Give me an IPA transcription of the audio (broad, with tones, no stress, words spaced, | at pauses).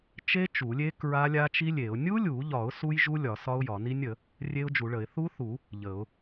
t͡ʃe˦˥ t͡ʃu˨˩˦lʲe˦˥ kɹa˦˥lʲa˦˥t͡ʃi˦˥lʲe˨˩˦ʊ̯ nʲu˦˥lʲu˨˩˦ʎɒ˨˩˦ʊ̯ su˦˥jʒu˦˥ lʲɒ˨˩˦sɒ˦˥ʊ̯jɒ˨˩˦ ni˦˥nʲə˨˩˦ | rʲe˦˥ʊ̯d͡ʒu˨˩˦ɭə˨˩˦ɪ̯ θu˦˥θu˨˩˦ | ʎə˨˩˦ʊ̯